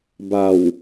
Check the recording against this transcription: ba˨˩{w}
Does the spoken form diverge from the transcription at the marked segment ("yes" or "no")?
no